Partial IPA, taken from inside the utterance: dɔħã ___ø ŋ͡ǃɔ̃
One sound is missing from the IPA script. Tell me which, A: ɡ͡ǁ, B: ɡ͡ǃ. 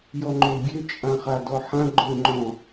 B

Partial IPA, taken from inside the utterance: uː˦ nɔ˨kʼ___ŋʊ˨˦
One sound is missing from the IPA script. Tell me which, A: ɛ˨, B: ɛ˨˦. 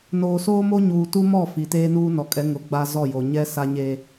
B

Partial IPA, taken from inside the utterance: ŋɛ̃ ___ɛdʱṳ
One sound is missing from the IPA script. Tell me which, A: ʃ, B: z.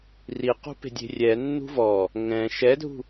A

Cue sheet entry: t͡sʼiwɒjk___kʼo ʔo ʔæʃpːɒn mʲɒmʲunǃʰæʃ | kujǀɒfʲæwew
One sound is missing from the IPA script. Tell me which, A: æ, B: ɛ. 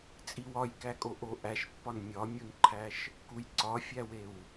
A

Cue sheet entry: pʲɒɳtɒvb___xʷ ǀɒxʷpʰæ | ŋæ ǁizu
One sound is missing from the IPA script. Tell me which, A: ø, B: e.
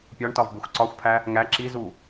B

